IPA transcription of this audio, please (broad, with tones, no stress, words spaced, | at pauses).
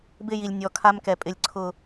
bɪ˦˨ji˨lʲ nʲɔ˨ kʰa˦mkɛ˨ pʼɪ˨lʲǀʰʊ˨